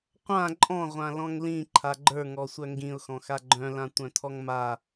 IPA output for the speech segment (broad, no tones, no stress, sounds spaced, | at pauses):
qʷ ã ǃʼ ɔ̃ ʁʷ ã l ɔ̃ ŋ l ĩ ǃʰ a ɡ͡ǃ ə˞ ŋ ɔ sʷ œ ŋ ɡ ĩ ʊ̯ x ɔ̃ x a ɡ͡ǃ œ̃ l ã tʷ œ̃ tʰ ɔ ŋ m a